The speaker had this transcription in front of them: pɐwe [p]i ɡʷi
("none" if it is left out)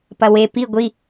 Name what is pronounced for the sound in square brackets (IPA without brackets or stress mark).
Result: p